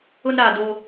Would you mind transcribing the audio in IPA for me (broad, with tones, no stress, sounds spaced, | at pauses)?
ʊ˦ n ɾ aː˨ d o˦